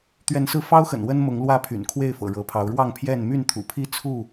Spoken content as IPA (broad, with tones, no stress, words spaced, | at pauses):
t̪ɥɛ˨˦nsɹ̩˧fɑ˦ʊ̯xə̰˨˩n wə˦nmʊ˨˦ŋ lwä˦pʰy̰˨˩n kʰwe˥˨ɪ̯fɤ̰˨˩ ɻɤ˨˦pʰɑ˨˦ʊ̯ ɻwɑ˥˨ŋpʰjɛ˥˨n my˥˨nt̪ʰṵ˨˩pʰi˥˨ t͡sʰu˥˨